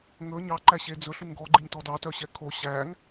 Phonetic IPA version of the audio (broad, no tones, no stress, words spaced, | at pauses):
ŋɵ ɲɑ ǃæɕed͡zɵ ɬuŋɡɔ ɡ͡ǃiɲtɔdɑ tœɕɛkʰo ɕæŋ